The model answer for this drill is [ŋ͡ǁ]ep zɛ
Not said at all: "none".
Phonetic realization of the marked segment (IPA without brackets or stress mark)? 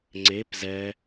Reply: ŋ͡ǀ